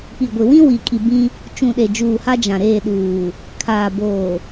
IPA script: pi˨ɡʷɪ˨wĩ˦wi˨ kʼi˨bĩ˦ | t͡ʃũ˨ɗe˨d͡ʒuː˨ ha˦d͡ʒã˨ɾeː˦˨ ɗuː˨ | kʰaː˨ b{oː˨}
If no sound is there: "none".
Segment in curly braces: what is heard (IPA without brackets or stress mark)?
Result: oː˨